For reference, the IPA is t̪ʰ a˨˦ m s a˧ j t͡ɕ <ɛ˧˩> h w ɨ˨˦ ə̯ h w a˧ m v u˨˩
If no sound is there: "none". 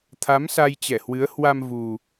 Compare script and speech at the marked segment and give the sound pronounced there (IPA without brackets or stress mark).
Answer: ɛ˧˩